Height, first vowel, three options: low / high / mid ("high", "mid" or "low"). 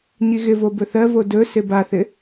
high